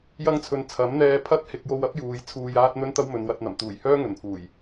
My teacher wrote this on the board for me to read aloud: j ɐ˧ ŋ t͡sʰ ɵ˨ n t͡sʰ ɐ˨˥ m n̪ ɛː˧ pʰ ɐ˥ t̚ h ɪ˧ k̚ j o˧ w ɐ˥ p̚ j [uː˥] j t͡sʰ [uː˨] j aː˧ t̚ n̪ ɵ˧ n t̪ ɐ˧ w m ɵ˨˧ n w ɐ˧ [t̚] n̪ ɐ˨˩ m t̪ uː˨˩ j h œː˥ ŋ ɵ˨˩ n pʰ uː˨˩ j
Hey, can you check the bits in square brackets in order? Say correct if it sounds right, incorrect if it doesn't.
incorrect, correct, correct

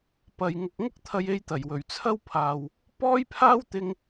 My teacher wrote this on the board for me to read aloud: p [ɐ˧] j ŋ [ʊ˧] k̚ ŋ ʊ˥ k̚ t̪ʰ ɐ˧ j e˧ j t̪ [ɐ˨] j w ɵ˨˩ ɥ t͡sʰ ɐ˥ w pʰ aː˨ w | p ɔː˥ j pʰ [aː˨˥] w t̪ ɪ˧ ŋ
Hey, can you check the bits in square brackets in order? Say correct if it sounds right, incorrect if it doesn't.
correct, incorrect, incorrect, incorrect

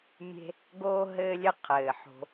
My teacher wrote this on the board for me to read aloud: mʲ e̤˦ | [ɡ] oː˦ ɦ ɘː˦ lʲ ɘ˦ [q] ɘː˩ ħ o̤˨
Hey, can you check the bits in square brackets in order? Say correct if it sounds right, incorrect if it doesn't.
correct, incorrect

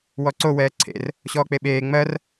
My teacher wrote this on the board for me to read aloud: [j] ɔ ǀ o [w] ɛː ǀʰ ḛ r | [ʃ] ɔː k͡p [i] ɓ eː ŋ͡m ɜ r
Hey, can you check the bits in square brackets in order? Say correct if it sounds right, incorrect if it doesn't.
incorrect, correct, incorrect, incorrect

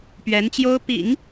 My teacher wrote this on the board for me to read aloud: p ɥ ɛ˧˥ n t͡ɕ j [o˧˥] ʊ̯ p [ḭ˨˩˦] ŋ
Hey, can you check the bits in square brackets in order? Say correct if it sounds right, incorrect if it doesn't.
incorrect, correct

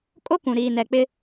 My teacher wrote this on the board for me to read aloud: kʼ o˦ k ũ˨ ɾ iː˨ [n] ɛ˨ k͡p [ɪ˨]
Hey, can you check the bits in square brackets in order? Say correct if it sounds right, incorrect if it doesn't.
correct, incorrect

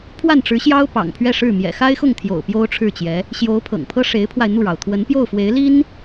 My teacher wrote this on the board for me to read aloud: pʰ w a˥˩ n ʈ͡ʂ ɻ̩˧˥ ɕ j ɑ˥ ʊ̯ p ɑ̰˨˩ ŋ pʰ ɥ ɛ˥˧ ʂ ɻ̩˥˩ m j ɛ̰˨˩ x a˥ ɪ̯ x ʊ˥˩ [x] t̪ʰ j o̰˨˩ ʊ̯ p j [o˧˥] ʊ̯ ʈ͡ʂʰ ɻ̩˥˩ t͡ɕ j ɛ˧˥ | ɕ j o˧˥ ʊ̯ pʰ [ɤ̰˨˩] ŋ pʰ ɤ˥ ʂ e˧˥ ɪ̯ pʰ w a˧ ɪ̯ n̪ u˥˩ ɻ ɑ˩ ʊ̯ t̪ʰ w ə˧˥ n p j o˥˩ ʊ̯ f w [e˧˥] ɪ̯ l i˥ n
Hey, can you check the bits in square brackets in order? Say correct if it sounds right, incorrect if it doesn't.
incorrect, incorrect, correct, correct

